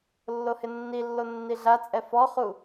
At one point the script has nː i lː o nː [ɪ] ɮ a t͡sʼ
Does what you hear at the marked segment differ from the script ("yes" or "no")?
yes